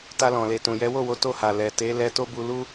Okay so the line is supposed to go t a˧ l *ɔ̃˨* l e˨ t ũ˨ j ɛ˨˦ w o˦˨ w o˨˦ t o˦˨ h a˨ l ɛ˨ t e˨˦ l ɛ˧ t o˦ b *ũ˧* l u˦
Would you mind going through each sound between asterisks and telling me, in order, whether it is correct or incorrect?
correct, incorrect: u˧

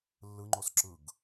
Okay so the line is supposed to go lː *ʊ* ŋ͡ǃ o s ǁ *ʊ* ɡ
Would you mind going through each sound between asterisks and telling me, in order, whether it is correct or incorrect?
incorrect: ɯ, incorrect: ɯ

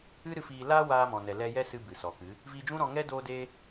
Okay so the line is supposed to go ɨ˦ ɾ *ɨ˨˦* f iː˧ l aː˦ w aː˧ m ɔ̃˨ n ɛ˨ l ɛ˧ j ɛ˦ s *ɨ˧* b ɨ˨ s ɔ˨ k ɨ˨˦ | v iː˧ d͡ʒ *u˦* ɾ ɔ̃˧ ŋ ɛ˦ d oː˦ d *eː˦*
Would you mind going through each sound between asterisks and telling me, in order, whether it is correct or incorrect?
incorrect: ɨ˦, correct, incorrect: ũ˦, correct

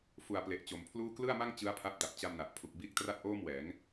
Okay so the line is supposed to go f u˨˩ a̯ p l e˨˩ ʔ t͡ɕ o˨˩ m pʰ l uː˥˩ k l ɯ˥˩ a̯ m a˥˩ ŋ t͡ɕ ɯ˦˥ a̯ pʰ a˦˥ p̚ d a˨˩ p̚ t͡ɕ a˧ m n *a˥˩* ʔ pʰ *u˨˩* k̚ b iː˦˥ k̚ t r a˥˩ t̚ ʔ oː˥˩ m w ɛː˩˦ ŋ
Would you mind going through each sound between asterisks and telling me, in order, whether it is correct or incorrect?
incorrect: a˨˩, correct

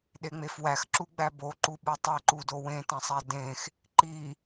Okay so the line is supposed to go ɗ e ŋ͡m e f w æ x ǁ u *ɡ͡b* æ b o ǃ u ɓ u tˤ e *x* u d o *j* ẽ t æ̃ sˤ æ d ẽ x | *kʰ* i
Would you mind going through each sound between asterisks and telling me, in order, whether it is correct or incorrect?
correct, incorrect: ǃ, incorrect: w, incorrect: ǃ

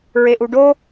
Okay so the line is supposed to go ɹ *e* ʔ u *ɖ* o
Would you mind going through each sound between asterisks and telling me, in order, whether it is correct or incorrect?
correct, correct

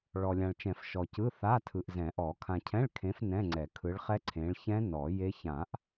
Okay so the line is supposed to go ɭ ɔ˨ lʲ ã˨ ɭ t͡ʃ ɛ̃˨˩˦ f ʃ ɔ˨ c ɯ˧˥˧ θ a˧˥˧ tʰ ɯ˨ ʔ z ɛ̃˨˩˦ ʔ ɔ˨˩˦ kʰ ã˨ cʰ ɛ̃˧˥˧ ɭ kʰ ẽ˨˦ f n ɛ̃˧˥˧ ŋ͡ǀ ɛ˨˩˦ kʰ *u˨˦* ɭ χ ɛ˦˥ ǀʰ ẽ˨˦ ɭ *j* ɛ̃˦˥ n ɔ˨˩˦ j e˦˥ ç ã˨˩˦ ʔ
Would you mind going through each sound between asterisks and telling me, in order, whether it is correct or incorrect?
incorrect: ɯ˨˦, incorrect: ç

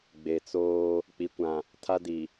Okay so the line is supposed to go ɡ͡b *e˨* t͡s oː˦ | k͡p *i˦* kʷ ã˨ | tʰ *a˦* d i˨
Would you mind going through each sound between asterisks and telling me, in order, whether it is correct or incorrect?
correct, incorrect: i˨, correct

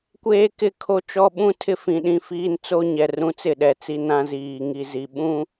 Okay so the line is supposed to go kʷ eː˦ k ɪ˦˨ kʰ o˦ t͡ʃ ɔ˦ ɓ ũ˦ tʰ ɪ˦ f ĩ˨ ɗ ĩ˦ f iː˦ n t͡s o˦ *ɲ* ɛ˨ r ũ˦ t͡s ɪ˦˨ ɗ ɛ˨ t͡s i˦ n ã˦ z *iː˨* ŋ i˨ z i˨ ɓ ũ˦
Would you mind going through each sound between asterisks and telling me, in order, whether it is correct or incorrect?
correct, correct

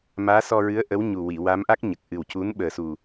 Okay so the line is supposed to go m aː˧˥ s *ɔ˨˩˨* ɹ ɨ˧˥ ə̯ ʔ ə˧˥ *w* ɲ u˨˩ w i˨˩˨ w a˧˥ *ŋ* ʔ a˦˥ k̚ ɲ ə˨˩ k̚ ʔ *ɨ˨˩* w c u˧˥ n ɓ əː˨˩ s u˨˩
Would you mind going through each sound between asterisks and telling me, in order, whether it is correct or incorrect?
incorrect: ɔ˧, correct, incorrect: m, correct

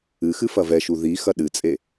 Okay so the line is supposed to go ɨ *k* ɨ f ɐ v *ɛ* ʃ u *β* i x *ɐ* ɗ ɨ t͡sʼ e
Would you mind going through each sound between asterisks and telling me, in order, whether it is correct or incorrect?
incorrect: x, correct, incorrect: ð, correct

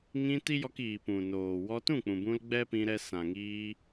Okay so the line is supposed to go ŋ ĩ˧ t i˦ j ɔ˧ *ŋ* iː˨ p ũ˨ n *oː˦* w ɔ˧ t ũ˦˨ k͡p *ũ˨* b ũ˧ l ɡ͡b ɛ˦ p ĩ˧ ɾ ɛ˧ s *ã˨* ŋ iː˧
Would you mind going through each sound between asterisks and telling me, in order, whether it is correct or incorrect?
incorrect: k, incorrect: oː˨, correct, correct

